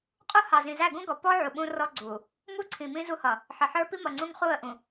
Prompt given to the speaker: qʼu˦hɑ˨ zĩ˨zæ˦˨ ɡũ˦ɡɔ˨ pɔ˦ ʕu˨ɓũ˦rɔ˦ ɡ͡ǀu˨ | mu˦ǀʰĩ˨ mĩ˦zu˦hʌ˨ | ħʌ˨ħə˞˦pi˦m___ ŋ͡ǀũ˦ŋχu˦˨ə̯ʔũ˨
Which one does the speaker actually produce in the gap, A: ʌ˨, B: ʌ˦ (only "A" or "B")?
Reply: A